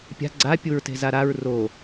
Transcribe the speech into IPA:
pʲa̤ ɡ͡ǀa pʲuɹte̤zaɾaɹ ro

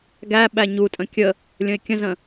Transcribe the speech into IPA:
ɡæ ɓæɲutʼə̃ kʲə | lʲə̃ɪ̯kʲə̃zə̃

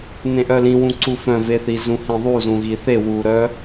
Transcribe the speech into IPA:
nẽʔœlĩwũ ǀufœ̃veθi zũhĩðˤuzũ ɣiθe wuɾœ

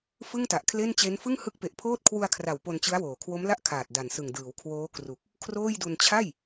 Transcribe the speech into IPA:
fɯ˥˩ŋta˨˩ʔkʰle˥˩nt͡ɕe˦˥n fɯ˥˩ŋhɯ˦˥k̚pe˨˩ʔpʰoː˥˩t̚ kʰwu˧a̯kʰra˨˩w po˧nt͡ɕɯ˦˥a̯woː˨˩ kʰwo˦˥mla˥˩ʔkʰaː˨˩t̚ da˨˩nsɯ˨˩ŋdɯː˩˦w kʰwoː˦˥kru˨˩k̚ | kʰroː˥˩jdu˧n t͡ɕʰa˥˩j

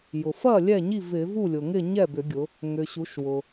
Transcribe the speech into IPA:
jʊ˩ fɐ˥˩ lʲɛ˥˩ɲi˥˩ vɪ˧˩˧vu˥˩lʲʊ˩ŋɪ˥˩ ɲɛ˥˩bʏ˧˩˧ɡʲʊ˩˧ | ŋʏ˩ɕu˩˧ʃwʊ˩

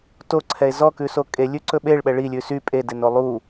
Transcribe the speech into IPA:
toǀʰɛe̯ zɔkʉso kʼelʲʉǀɵ ɓeɭɓɛ ɭilʲʉ sy pʼedeno lˠu

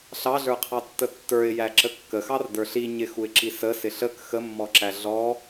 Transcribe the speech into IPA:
ɬɑɮə˞qʰɑtːə tːə˞ɪ̯ jæǁəkːəxɑr də˞ɬi ɲɪxuɪ̯ǁi sə sɪɬək xəmːɔǁæ ɮɔ

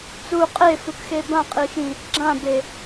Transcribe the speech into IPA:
t͡su qʼefukxe bãqʼixĩ | ɡ͡ǁãbe

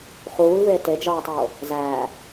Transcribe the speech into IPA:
χuːlveː ted͡ʒɒːtˤoː | zæː

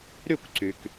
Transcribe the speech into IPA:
ɾy˥˨kʷǀy˩k

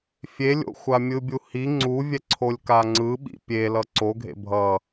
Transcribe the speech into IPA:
fʲelʲo̰xʷa mʲɯbʲuhi ŋ͡ǀuvʲɛǀʰolʲ kaŋ͡ǀɯ ɓḭpʲe lʌǀoɡʱḛ bʱʌ

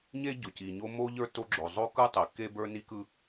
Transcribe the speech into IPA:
ɲe˥ ɟo˩ci˩ɲo˥ mo˥ʎə˞˥ to˥ ɡ͡ǁo˩ zˤo˥kɯ˥ tˤi˩ ke˥bə˞˥ ni˥kɯ˥

